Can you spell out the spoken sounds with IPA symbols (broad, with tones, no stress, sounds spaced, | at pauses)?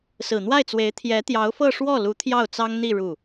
s ɹ̩˨˩ n̪ w a˥˩ ɪ̯ t͡s w e˧˥ ɪ̯ t̪ʰ j ɛ˧˥ t̪ j ɑ˧˥ ʊ̯ f ɤ˥˧ ʂ w ɔ˥˩ l u˧˥ t̪ʰ j ɑ˥˩ ʊ̯ t͡s ɑ˥ ŋ n̪ i˥˧ ɻ u˥˩